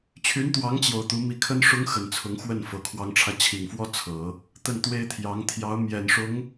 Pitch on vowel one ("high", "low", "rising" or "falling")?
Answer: rising